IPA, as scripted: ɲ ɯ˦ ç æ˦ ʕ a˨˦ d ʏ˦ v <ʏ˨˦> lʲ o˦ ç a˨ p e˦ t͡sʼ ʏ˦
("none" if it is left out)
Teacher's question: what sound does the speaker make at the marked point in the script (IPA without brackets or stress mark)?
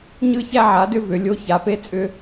ʏ˨˦